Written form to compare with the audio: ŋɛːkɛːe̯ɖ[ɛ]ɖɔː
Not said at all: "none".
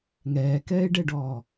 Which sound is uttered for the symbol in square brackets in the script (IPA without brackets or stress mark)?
ɛ